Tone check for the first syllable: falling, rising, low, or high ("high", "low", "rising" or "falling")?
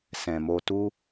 low